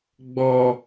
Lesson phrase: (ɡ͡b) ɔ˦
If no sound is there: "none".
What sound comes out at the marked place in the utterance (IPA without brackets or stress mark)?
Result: ɡ͡b